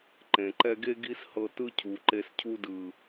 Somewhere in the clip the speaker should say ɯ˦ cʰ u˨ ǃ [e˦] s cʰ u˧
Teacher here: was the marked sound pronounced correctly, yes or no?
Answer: no